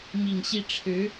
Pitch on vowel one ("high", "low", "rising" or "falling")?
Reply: low